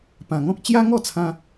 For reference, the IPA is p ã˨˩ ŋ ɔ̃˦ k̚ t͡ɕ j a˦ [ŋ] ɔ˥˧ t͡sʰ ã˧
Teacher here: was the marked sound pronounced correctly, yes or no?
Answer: yes